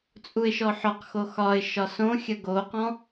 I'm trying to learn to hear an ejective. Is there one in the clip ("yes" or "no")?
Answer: yes